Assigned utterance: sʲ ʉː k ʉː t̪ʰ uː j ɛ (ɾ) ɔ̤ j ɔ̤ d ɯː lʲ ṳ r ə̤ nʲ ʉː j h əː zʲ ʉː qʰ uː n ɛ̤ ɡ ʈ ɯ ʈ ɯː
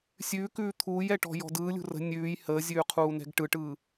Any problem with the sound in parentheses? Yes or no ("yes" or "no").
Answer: yes